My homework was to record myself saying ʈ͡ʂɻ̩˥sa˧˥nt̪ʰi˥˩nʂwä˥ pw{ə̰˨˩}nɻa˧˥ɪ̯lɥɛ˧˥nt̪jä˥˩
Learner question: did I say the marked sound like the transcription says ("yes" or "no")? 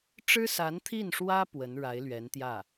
no